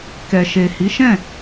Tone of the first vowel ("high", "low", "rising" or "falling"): low